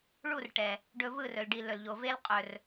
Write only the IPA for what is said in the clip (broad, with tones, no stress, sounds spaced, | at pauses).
ɭ u˦˨ r ʈ ɛ˨ | ɖ ɵ˧ v ɯ˦˨ r ɵ˨ l ɖ i˨ l ɵ˨ l ʎ o˨ v e˦ l qʼ ɵ˨ r